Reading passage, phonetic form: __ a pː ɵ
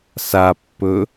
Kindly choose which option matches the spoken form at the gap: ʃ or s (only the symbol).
s